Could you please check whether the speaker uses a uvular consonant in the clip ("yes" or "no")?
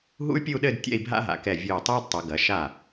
no